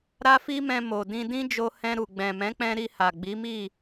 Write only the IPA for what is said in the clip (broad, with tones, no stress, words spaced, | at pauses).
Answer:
ɾa˦fi˦mɛ̃˧ mo˨dĩ˧ dĩ˦d͡ʒo˧hɛ̃˧ɾu˨ ɡ͡bɛ̃˨mɛ̃˨˦k͡pɛ̃˧ ɾi˧ha˨ ɡ͡bi˨˦mi˦˨